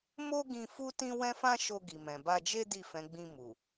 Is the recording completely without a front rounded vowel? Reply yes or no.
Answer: yes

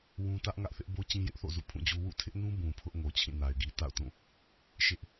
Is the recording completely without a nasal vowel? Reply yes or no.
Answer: no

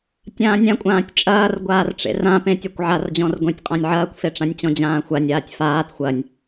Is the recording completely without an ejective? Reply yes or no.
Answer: no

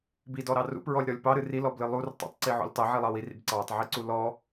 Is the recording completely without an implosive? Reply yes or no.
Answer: yes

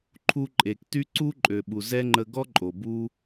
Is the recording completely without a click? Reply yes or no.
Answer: no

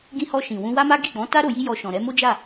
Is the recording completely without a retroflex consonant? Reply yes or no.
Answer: yes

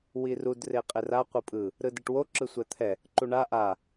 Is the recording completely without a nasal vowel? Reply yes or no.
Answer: yes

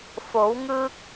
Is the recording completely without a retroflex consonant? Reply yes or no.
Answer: yes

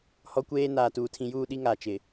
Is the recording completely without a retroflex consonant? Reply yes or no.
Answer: yes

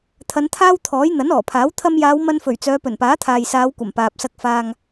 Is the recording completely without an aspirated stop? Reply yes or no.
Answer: no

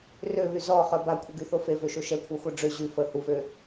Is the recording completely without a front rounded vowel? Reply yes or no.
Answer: no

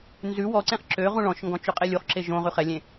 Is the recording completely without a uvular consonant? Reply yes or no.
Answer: no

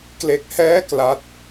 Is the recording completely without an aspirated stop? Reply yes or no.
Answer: yes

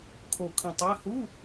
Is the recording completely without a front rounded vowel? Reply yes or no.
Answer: yes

